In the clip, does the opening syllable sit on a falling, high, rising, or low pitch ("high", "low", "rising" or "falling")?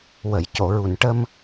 low